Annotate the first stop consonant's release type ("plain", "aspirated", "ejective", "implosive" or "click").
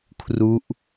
aspirated